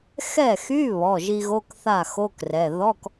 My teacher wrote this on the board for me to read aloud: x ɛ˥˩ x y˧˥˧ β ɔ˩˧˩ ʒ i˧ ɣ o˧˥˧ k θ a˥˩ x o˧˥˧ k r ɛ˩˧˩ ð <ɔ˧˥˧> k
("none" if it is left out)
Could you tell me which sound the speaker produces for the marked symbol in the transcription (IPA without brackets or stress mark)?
ɔ˧˥˧